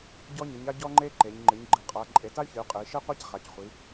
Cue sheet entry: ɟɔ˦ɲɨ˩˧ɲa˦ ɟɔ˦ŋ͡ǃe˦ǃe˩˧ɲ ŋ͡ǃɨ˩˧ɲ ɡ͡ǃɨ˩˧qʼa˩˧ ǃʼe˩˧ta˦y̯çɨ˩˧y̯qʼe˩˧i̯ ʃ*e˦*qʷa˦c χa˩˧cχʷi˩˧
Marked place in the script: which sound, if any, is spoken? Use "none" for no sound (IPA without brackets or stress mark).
e˦